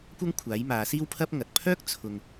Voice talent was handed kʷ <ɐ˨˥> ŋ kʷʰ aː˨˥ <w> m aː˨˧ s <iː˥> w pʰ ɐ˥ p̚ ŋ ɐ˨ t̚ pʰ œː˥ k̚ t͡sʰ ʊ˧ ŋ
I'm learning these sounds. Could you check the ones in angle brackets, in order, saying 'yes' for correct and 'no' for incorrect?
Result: no, no, yes

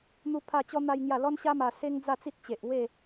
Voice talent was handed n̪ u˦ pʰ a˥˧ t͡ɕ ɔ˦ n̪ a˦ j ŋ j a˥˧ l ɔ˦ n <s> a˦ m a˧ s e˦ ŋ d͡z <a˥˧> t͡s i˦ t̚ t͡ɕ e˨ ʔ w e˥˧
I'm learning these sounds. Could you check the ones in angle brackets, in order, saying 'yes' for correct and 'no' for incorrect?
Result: no, yes

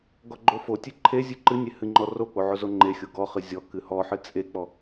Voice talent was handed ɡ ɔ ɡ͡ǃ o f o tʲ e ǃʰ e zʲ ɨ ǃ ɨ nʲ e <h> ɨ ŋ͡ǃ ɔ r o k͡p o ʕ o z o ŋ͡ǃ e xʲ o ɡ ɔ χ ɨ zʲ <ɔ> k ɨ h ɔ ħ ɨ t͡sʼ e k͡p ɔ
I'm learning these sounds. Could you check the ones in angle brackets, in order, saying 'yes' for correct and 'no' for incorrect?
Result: yes, yes

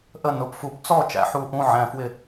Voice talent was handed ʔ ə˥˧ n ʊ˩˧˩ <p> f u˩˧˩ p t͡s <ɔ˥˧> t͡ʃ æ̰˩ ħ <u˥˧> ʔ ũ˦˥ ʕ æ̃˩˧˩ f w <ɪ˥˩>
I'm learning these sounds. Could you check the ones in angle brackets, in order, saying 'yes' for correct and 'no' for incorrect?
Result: yes, yes, yes, yes

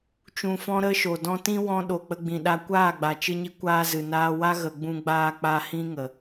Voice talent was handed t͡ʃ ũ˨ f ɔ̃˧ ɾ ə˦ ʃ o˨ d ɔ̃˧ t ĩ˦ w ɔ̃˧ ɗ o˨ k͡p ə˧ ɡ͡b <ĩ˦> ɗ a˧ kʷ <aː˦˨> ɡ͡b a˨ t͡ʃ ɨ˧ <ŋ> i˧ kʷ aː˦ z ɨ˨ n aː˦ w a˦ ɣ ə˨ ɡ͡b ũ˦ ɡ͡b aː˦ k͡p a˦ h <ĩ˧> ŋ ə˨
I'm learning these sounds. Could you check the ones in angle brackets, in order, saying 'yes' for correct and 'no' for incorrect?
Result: no, yes, no, no

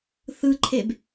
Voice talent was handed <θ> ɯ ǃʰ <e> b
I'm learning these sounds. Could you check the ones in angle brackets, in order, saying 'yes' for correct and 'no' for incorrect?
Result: yes, yes

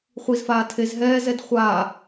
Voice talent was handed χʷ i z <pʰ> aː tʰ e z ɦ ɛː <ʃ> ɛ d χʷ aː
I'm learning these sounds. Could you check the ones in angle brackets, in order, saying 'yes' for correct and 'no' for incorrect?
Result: no, no

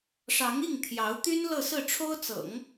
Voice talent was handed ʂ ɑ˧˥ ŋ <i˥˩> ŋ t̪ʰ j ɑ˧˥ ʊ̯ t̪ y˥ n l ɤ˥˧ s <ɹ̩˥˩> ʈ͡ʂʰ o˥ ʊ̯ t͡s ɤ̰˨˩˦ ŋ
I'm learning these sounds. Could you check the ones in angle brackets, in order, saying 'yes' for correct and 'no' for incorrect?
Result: yes, yes

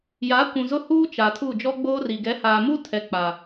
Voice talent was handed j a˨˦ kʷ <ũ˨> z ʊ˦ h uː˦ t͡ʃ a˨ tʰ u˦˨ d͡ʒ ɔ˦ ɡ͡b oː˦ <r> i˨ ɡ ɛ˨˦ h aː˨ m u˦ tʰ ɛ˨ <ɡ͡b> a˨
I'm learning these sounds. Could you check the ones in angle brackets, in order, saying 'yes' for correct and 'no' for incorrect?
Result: yes, yes, no

